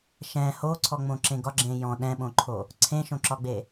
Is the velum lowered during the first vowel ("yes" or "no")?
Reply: yes